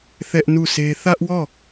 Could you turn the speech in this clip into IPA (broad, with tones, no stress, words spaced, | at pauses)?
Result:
θɛ˦ʔnu˦˨sʰe˦ θä˦ʔwɔ˦˨